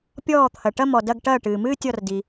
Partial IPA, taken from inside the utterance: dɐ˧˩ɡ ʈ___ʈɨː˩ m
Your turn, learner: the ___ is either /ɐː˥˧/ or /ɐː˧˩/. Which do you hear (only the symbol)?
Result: ɐː˧˩